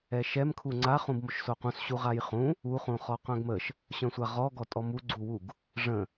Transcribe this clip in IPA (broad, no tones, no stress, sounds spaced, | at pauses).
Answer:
ɛ ʃ ɛ m kʰ u ŋ͡ǀ a χ ũ b m o ʃ s o q ũ s ɕ u ʁ a j χ ũ | u χ ũ χ ɔ q œ̃ ɡ m ə ʃ | ɕ œ̃ sʷ a ʁ ɔ ɡ ɔ tʼ ɔ m u ɡ͡ǀ u w u ɡ | ʐ ə̃